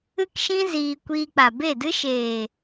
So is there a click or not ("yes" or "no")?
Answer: no